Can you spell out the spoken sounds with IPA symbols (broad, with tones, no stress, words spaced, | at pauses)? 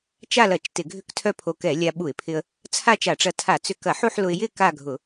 t͡ʃa˥˧lɐ˧˩˧t͡ʃ tɪ˧˩˧ɡʱʏ˥˧ktʰœ˥˧pʰo˧ kɛ˧˩˧lʲa˧ ɓu˧˩˧ɪ̯pʰɪ˧ə̯ | t͡sʰa˥˧t͡ʃa˧˩˧ʈ͡ʂɐ˧tʰa˧˩˧ t͡sʏ˧ kɐ˧˩˧ħu˥˧ħlʊ˧ɪ̯ jɪ˥˧ ka˥˧ɡʱʊ˧˩˧